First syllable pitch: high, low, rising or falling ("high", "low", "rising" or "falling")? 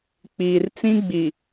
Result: low